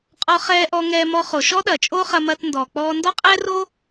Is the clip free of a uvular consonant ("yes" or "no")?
no